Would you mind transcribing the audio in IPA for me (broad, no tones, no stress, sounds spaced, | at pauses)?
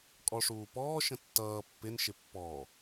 kʼ ɔ ʂ uː p ɔː ʃ ə̃ tː ʌː pː ɪ n ʃ ɪ pː ɔ